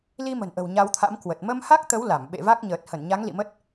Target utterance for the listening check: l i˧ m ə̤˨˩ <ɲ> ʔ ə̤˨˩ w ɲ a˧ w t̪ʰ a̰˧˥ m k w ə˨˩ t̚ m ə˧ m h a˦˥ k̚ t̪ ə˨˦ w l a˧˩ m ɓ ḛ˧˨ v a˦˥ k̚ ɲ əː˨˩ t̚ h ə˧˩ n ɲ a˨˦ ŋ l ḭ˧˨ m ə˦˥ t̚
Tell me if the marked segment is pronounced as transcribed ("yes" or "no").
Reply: no